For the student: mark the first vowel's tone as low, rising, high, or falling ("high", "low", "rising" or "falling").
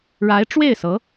rising